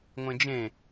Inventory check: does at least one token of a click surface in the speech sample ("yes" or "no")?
no